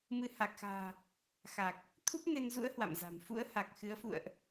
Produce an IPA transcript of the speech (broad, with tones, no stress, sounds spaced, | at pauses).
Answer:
m ɨ˧ h a˨˩ k̚ x a̤ː˨˩ | x a˨˩ k̚ | t̪ʰ u˦˥ p̚ n e˧ n z ṵ˧˥ ə̯ h w a̰˧˨ m z a̤˨˩ m f ṵ˧˥ ə̯ h a˨˩ k̚ x ɨ˨˦ ə̯ f ṵ˧˨ ə̯ ʔ